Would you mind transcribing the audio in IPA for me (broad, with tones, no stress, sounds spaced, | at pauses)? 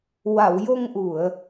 w a˨˩˨ w j o˧ ŋ ʔ u˨˩˨ ə̯